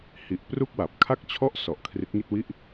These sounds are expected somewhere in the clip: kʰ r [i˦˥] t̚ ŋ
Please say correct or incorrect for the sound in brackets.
correct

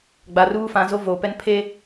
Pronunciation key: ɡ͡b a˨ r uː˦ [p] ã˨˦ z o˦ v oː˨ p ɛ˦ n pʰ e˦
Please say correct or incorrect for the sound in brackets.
incorrect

